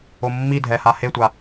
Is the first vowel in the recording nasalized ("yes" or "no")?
no